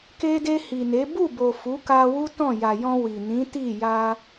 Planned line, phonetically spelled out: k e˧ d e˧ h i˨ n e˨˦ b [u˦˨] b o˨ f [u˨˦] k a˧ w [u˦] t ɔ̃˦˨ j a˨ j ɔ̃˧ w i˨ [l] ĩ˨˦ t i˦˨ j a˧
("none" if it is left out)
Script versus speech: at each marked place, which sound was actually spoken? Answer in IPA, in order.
u˦˨, u˨˦, u˦, n

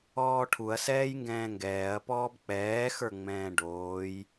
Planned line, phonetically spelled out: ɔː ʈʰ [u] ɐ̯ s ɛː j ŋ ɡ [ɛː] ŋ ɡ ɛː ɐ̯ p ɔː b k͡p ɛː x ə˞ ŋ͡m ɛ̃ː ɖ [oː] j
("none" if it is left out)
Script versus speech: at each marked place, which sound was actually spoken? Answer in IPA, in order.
u, ɛ̃ː, oː

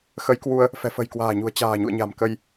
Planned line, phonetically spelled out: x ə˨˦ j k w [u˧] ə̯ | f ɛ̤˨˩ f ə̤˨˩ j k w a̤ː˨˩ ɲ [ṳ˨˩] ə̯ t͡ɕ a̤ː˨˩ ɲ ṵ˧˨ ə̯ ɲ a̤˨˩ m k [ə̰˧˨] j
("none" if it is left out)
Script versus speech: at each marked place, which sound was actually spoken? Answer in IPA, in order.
u˧, ṳ˨˩, ə˧

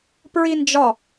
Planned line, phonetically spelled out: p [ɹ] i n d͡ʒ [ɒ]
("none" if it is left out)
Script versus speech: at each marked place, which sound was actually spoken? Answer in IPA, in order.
ɹ, ɒ

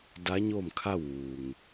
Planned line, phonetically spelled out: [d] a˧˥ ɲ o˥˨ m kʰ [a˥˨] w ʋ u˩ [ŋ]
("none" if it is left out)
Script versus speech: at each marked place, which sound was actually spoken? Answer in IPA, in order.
d, a˥˨, ŋ

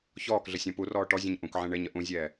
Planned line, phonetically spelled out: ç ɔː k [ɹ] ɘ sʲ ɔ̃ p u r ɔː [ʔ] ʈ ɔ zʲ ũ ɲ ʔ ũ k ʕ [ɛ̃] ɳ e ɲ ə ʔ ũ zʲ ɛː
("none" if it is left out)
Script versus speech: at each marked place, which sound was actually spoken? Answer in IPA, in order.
ɮ, none, ɛ̃

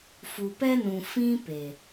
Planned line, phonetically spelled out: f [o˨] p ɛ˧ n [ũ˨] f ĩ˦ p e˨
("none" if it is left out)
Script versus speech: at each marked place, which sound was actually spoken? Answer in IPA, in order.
u˨, ũ˨

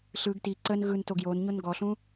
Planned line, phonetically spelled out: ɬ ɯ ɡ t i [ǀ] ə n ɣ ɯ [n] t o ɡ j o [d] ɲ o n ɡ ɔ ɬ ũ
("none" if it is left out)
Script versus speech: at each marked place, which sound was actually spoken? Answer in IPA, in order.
ǀ, n, n

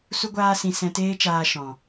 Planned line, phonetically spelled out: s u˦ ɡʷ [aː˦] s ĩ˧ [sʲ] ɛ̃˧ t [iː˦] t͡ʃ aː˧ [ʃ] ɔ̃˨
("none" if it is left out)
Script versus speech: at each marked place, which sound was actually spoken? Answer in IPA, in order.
aː˦, s, eː˦, ʃ

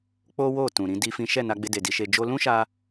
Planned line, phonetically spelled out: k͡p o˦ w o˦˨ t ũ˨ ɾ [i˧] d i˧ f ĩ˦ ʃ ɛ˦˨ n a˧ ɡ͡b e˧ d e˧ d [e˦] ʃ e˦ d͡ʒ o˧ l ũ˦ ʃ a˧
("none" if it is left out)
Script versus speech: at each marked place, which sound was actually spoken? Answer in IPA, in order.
ĩ˧, i˦

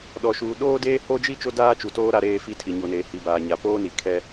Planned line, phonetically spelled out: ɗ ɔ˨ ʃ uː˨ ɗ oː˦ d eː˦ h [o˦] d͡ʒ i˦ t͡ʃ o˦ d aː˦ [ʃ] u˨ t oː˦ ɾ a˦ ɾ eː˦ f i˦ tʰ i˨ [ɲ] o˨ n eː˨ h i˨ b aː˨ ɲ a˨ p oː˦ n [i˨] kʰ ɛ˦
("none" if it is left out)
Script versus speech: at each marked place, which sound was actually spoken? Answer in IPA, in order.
o˦, t͡ʃ, ɲ, i˨

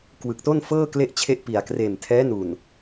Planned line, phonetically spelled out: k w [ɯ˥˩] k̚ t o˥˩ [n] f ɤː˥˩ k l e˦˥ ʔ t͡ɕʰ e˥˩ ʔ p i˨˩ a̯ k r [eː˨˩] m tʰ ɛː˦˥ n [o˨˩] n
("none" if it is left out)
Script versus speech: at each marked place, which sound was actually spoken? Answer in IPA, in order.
ɯ˨˩, n, eː˨˩, u˨˩

